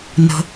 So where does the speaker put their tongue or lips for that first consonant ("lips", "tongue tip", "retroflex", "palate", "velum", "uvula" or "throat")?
tongue tip